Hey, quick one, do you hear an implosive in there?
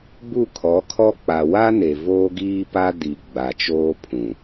no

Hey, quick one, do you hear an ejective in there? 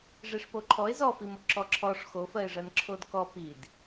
no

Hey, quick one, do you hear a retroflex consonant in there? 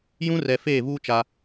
no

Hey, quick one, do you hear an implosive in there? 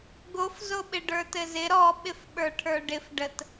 yes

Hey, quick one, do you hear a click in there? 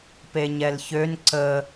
yes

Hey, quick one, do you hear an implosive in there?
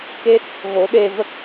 yes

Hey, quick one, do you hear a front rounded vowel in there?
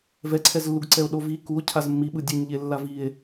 no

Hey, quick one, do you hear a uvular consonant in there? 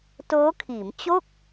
no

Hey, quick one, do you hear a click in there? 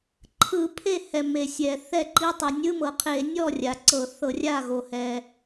yes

